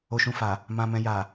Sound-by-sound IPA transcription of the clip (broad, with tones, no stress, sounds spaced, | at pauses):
o˨ ʃ ũ˨ f a˨ | m ã˨ m ɛ̃˨ j a˨